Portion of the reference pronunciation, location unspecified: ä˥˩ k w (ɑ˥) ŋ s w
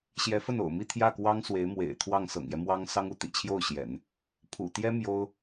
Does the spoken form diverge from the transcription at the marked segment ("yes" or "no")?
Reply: no